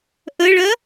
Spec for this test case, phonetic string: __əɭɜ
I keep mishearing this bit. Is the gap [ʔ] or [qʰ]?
ʔ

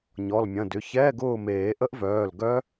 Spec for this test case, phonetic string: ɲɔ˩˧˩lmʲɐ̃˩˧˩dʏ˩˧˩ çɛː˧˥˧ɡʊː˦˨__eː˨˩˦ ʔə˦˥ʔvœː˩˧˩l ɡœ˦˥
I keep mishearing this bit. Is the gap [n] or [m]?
m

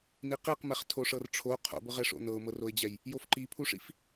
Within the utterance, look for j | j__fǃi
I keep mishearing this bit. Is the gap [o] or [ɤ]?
o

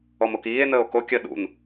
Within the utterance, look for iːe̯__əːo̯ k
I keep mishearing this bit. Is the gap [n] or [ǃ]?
n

